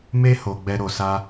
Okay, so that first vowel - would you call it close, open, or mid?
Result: mid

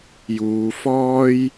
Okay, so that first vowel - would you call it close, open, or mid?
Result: close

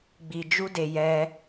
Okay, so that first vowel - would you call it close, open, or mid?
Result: close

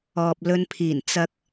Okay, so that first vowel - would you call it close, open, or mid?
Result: mid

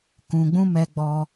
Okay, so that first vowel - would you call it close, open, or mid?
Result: close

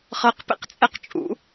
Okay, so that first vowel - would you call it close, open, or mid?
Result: mid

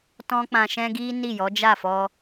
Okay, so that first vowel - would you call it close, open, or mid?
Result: mid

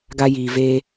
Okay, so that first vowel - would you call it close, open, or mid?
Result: open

